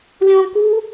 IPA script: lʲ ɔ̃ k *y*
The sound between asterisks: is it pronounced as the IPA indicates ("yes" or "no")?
no